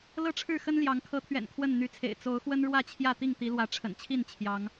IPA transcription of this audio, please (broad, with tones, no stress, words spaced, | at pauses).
lɤ˦ʈ͡ʂʰɻ̩˥˨xə˦n ljɑ˨˦ŋ kʰɤ˨˦t̪ʰɥɛ̰˨˩n kʰwə˥˨n n̪y˨˦t͡sʰḛ˨˩ɪ̯ t͡so˨˦ʊ̯xwə˦n ɻwä˥˨t͡ɕʰjä˥˨ t̪i˥˨ŋt̪i˨˦lwä˨˦ ʈ͡ʂʰə̰˨˩nt͡ɕʰi˥˨n t͡ɕʰjɑ˨˦ŋ